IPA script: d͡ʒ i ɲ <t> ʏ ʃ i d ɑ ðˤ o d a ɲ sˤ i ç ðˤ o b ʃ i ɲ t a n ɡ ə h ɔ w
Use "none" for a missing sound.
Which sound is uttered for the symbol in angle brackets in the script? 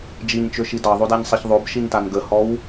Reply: t͡ʃ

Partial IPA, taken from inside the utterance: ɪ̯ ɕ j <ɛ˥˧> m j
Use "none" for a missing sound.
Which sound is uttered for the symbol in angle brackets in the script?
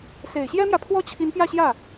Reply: ɛ˥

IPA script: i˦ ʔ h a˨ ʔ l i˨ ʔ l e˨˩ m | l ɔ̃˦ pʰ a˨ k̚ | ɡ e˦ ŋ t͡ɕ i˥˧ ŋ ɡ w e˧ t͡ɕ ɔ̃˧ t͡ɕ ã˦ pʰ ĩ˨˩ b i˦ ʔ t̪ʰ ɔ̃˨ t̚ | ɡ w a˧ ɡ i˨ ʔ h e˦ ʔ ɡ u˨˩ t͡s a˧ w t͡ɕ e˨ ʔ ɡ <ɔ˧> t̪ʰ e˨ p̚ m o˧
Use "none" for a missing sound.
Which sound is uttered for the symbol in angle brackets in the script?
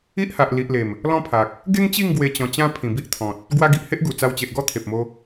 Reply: ɔ˦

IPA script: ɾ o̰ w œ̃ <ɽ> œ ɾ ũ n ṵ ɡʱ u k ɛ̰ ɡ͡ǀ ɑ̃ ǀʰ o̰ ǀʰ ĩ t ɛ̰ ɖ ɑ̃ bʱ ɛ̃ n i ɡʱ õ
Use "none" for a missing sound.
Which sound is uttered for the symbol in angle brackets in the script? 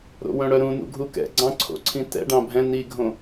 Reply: ɽ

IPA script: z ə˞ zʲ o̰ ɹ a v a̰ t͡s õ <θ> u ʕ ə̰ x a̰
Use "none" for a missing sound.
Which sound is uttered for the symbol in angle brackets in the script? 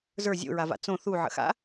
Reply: θ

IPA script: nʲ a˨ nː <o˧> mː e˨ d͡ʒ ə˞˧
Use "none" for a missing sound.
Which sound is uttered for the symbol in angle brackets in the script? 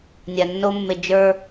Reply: o˧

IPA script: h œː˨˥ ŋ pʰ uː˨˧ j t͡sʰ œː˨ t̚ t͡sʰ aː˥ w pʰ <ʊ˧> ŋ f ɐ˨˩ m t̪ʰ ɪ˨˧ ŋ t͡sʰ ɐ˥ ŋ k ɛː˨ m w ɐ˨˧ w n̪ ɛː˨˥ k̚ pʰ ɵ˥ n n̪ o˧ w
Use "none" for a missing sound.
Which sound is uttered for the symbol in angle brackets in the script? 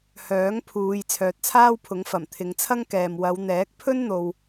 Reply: ʊ˨˥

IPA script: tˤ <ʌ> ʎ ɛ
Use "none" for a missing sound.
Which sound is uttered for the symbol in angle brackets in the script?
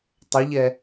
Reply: ʌ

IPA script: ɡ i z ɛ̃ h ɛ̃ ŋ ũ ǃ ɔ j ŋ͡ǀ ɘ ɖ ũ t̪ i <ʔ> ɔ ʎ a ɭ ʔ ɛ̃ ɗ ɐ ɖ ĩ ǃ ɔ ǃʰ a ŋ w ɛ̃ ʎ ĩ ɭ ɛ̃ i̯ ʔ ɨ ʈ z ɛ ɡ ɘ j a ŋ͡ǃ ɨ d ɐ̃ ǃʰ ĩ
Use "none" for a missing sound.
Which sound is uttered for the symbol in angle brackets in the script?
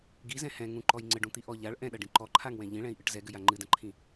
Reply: ʔ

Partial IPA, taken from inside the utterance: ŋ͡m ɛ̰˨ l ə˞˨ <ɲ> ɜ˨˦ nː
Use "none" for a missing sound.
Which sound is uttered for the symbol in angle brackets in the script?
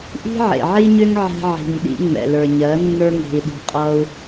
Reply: ɲ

